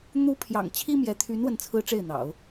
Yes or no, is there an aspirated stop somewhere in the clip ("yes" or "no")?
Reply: yes